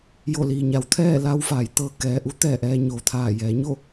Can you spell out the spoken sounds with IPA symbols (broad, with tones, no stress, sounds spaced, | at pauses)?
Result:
j o˧˩ l iː˩ ɲ a˩˧ w t̪ʰ ɛː˥˨ l a˧ w f aː˩˧ j t̪ ɤː˩ k ɛː˩ ʔ u˧˥ t̪ ɛː˧˩ ʔ ɛː˧ ɲ oː˩ t̪ʰ aː˧˩ j ɛː˩˧ ɲ o˥˨